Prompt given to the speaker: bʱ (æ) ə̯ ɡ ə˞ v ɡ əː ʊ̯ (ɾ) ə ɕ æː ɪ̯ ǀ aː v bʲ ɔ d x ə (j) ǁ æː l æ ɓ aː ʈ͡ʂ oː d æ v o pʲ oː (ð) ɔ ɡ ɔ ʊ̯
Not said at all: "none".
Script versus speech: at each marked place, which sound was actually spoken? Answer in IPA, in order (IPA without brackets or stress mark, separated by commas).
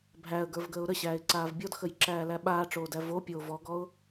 æ, ɾ, j, v